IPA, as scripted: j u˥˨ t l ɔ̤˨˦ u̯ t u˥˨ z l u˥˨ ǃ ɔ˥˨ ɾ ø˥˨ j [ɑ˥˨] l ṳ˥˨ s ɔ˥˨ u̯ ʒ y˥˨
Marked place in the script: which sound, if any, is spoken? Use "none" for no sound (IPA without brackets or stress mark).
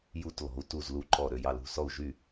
ɑ˥˨